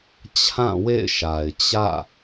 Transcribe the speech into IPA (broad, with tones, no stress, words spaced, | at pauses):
t͡ɕʰã˦˨wḛ˦˨ɪ̯ʃa˨ɪ̯ t͡ɕä̰˦˨